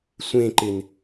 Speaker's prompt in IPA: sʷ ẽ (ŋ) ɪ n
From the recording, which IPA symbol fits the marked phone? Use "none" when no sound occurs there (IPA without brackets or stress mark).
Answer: ǃ